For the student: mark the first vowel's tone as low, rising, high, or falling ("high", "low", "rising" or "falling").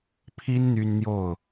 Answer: high